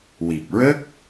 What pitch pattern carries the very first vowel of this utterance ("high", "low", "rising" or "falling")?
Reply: low